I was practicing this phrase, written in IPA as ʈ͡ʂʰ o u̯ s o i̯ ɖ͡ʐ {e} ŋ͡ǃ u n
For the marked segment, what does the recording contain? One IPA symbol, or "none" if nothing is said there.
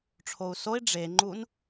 e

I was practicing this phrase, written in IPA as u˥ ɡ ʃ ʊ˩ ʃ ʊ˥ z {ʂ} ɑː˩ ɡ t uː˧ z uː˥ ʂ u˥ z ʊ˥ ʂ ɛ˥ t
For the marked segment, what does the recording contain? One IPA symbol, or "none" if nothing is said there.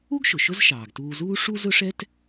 ʃ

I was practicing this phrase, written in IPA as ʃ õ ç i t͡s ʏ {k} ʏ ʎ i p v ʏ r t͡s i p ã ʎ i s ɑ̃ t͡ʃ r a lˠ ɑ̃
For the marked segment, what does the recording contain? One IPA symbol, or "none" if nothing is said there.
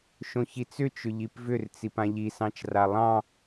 t͡ʃ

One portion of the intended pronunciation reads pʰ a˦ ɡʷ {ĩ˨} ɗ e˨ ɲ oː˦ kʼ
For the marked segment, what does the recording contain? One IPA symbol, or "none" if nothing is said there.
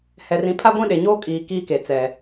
ĩ˦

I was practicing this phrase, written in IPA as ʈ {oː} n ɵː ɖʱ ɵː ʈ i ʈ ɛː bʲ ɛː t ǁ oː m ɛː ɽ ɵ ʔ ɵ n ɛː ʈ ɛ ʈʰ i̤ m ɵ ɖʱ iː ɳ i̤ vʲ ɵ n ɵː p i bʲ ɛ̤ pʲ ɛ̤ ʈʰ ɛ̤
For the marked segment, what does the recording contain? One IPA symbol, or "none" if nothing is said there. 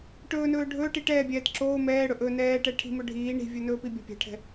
ɵː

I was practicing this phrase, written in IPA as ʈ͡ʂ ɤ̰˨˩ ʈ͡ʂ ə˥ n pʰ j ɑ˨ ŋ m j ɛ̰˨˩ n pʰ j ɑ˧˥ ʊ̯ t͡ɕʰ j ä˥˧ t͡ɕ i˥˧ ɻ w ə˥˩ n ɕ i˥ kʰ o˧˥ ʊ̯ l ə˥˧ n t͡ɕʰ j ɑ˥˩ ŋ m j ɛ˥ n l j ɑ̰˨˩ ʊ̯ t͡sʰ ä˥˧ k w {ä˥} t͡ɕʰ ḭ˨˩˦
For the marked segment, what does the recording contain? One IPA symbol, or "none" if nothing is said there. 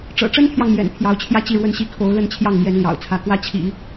ä˥˩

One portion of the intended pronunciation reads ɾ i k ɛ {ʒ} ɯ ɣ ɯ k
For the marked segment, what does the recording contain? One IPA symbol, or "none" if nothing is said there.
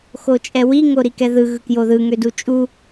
ð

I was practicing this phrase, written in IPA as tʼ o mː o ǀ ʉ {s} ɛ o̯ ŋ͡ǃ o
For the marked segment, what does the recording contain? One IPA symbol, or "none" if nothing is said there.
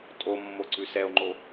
s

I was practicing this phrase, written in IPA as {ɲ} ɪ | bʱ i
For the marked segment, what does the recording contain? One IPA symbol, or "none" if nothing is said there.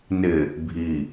n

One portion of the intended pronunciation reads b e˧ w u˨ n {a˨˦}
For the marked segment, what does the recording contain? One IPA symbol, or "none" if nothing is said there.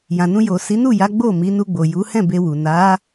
a˨˦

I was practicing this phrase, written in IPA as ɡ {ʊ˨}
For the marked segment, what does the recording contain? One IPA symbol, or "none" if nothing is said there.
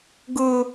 ʊ˨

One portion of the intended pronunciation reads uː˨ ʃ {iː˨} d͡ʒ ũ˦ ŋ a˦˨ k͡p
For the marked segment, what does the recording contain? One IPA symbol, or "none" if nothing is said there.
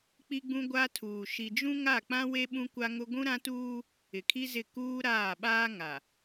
i˨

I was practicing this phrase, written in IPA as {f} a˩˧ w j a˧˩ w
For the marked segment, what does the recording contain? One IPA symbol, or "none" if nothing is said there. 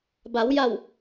b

